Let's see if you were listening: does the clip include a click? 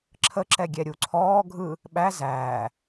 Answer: yes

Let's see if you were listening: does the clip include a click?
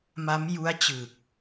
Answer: no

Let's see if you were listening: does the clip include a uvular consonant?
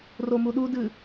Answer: no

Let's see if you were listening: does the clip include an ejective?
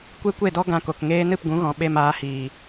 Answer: no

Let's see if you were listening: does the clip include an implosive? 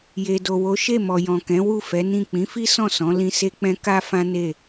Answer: no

